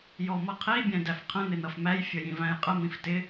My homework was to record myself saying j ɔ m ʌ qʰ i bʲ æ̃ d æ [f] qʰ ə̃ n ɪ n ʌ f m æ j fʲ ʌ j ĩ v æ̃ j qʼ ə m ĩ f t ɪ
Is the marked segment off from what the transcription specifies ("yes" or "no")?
no